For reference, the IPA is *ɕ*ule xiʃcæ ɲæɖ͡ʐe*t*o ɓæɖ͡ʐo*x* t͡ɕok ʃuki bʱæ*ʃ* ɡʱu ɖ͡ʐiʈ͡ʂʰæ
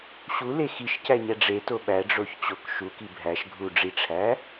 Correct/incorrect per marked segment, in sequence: correct, correct, incorrect, correct

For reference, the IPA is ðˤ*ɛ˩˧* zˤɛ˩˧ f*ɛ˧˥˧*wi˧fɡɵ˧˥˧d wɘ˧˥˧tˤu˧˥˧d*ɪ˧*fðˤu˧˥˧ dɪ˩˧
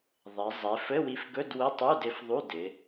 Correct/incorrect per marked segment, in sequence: correct, incorrect, correct

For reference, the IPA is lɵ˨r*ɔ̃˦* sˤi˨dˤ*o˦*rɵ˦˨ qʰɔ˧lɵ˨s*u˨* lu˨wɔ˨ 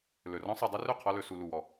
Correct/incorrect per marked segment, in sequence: correct, incorrect, correct

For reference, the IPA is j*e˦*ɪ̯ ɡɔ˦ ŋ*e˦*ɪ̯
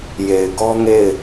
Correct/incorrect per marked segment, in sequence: incorrect, incorrect

